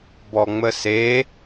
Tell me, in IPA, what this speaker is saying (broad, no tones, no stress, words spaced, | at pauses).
bɔŋ͡məse